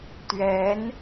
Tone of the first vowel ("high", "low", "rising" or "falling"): rising